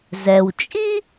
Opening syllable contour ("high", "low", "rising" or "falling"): low